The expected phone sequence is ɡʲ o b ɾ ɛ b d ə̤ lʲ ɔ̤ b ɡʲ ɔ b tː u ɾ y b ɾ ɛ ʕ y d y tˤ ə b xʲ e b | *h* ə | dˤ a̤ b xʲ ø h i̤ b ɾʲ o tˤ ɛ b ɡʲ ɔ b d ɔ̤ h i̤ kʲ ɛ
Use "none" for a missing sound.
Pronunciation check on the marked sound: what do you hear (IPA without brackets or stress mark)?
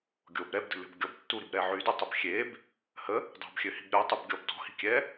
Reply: h